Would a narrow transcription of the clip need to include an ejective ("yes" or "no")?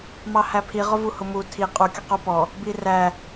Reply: yes